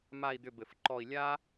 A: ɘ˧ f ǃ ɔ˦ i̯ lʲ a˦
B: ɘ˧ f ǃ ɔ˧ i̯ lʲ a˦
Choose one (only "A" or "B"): B